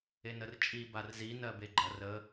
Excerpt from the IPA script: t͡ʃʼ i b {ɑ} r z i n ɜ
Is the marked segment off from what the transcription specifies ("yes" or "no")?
yes